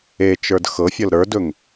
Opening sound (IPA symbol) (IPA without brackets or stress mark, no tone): e